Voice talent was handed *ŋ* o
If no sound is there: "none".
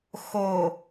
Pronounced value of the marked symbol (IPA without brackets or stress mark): x